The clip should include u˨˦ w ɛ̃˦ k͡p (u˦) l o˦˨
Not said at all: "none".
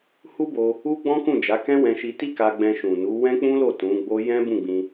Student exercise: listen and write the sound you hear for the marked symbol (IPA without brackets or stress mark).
ũ˦